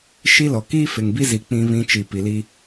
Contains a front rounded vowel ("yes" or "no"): no